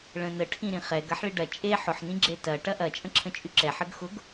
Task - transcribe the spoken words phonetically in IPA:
ɭə̃nə ʈʰĩɾĩχɛɡ ɐħɭiɖɐ t͡ʃʼe ħʊħ nĩɡ͡ǁetɐ ʈɐʔɐ t͡ʃʼə̃ǁʰə̃t͡ʃʼyǁɛ ħəɡxʊɡ

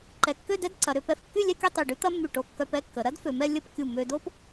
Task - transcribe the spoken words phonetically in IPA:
ǃɛ˧ kːø˥˧dɛ˥dǀɐ˩˧ɾø˩˧ pɛ˧f kːy˥˧lʲɛ˥˧kʲɐ˥˧ tˤy˧˩ɖy˥t̪ɐ˥mːy˧˩ ʈo˧kːœ˧p ɛ˥˧kːə˩˧ ɾɐ˥dfø˩˧mɛ˧ lʲə˥˧p kʲu˧˩mːø˧do˥p

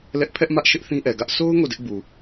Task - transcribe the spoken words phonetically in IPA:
lɛ˦ʔ pʰɛ˦ʔmä˦ʔ ʃɪ˦ʔθĩ˦ʔɛ˨ɡä˦ʔ so˦ʊ̯ ŋo˦˨dɪ˦ʔbu˨

